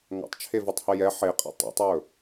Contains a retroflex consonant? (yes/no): no